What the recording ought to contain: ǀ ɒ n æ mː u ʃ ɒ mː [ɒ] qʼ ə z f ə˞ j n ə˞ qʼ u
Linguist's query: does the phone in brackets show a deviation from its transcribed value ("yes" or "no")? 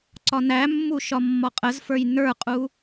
no